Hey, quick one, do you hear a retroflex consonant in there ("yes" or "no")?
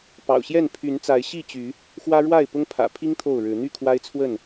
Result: yes